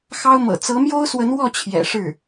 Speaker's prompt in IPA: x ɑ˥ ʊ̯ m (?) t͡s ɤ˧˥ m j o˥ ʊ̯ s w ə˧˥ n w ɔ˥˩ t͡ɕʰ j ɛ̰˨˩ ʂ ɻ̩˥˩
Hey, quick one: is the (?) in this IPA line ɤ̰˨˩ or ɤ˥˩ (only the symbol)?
ɤ̰˨˩